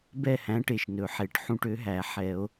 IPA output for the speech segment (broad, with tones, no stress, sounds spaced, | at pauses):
b ɛ˥˧ h æ̃˨˥ ʈ e˩ ʃ n ɵ˩ ħ e˨˩˦ ʈ ħ ũ˥˧ ʈ ø˨˥ ɦ æ˨˩˦ ħ ɛ˨˩˦ o̯